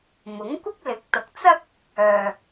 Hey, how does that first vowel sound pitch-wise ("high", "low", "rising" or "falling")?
rising